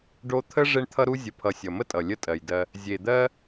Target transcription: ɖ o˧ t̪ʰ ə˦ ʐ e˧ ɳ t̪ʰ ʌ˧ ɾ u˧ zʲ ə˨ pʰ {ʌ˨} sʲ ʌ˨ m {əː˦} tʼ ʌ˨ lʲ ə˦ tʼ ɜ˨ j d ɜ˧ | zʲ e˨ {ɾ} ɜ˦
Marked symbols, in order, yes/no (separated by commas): yes, no, no